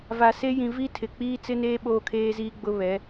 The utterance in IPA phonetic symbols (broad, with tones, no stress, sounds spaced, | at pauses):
v a˨ s e˦ j ĩ˨ v i˦ tʰ ɪ˨ k͡p iː˦ t͡s ɪ˦ n eː˦ ɓ oː˦ kʰ eː˦ z iː˦ ɡ͡b ʊ˦ β ɛ˨˦